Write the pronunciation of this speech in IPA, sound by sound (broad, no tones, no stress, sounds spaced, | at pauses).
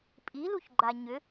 pʼ i l u ç ɡ͡ǃ a ɲ ʏ